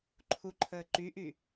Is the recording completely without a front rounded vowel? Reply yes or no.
no